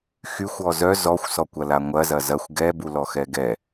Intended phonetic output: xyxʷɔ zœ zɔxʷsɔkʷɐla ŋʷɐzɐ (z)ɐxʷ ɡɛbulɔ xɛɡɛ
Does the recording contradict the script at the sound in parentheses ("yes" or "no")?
no